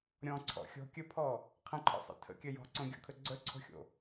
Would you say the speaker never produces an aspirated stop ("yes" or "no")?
no